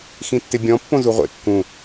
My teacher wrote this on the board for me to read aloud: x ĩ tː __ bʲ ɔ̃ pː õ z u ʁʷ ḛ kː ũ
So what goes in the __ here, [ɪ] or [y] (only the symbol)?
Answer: ɪ